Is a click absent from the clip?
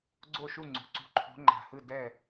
no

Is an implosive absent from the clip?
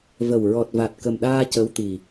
no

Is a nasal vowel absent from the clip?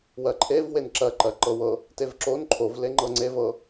yes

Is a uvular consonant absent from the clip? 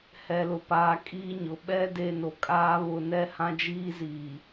yes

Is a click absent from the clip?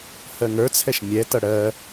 yes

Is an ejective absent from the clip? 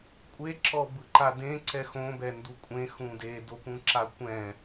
no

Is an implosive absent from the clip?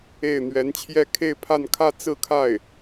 yes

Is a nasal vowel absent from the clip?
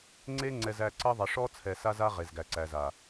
yes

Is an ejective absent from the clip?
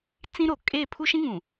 no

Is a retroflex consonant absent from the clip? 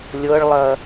no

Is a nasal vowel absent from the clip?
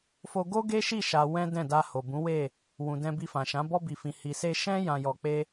no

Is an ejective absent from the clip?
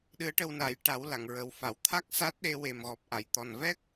yes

